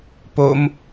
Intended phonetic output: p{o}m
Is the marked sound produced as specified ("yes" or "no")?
yes